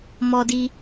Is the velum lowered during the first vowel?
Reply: no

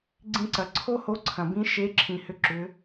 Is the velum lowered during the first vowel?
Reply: yes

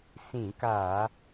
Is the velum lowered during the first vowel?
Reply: yes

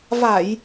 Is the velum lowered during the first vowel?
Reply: no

